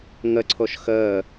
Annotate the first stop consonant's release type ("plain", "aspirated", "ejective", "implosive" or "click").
click